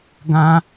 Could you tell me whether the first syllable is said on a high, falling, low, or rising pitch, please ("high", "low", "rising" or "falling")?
high